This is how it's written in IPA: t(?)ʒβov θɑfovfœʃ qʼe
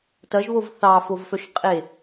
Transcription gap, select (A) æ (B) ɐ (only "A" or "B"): B